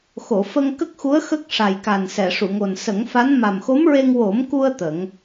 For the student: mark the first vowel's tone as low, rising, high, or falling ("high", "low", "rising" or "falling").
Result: low